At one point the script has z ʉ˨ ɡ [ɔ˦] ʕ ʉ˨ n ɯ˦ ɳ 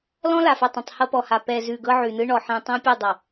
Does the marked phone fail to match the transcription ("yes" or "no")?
yes